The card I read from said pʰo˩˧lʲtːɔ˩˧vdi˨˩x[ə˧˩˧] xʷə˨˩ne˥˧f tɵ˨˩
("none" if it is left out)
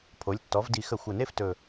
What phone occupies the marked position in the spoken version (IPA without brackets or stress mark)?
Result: ə˧˩˧